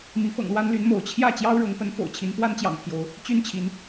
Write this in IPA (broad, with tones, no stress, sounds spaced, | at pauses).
m i˨˦ f ɤ̰˨˩ ŋ l w a˦ n l y˨˦ n m o˨˦ ʊ̯ t͡ɕʰ j ä˥˨ t͡ɕ j ɑ˦ ʊ̯ ɻ ɤ˨˦ ŋ p ə˨˦ n f o̰˨˩ ʊ̯ t͡ɕʰ i˨˦ n p w a˦ n t͡ɕ j ɑ̰˨˩ ŋ pʰ j o˨˦ ʊ̯ | t͡ɕ y˦ n t͡ɕʰ i˨˦ n